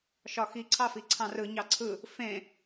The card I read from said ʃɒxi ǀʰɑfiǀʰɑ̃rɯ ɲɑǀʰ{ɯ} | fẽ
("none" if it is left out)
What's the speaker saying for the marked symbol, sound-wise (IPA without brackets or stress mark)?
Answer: ɯ